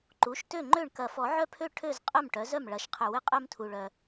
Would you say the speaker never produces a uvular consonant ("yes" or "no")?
no